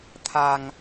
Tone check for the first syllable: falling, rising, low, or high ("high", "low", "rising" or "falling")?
low